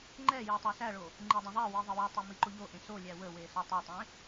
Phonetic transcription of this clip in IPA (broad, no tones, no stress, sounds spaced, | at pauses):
ŋ͡ǃ ɛ j i tˤ æ s æ ɭ o | ŋ͡ǃ e dˤ ə̃ ðˤ ɛ w i ðˤ ə w ɔ tˤ e m i ǃ o ʎ o ʔ ẽ s o lʲ æ w ə w e s ɔ tˤ ɛ tˤ ẽ